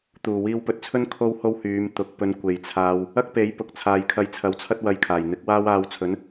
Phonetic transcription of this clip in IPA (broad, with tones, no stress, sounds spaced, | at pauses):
t̪ uː˨˩ w iː˧ w p ɵ˧ t̚ t͡sʰ ɵ˥ n kʰ o˥ w h o˥ w h yː˨˧ m t̪ ʊ˨˥ k̚ p ɵ˧ n kʷ e˨ j t͡sʰ aː˧ w | ɐ˥ k̚ p e˨˥ j p ʊ˨ k̚ t͡sʰ aː˨ j kʰ ɐ˧ j t͡sʰ ɐ˨˥ w t͡sʰ ɐ˥ t̚ w ɐ˧ j kʰ aː˨˩ j n̪ ɪ˨˥ k̚ w aː˥ w aː˧ w t͡sʰ ɵ˨˥ n